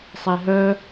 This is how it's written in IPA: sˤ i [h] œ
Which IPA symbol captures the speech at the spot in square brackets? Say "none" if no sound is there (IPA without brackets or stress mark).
ɦ